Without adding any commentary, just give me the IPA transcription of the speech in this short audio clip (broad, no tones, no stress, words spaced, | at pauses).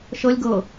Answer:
ʃɤlʲ ɡɤ